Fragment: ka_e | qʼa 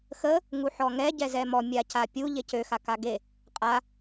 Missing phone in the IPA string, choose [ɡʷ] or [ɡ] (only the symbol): ɡ